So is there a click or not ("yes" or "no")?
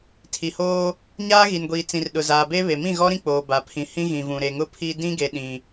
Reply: no